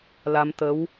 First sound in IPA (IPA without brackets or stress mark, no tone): l